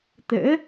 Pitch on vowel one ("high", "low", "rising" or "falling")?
rising